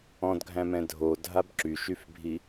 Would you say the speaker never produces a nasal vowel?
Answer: no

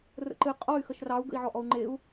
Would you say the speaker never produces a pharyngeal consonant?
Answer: no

